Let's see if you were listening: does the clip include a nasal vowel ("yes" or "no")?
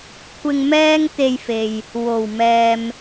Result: no